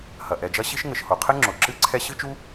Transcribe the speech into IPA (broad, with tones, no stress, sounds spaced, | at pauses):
h ɐ˩ ʔ ɛ˩ d͡ʒ ɐ˥ ɕ i˥ ʃ ŋ ɘ˩ ʃ h o˩ qʰ ɘ˥ ŋ͡ǁ o˩ ǁ ɨ˥ ǀʰ ɛ˥ ɕ ɨ˥ t͡ʃ u˥